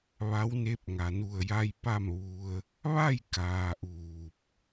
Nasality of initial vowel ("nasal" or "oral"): oral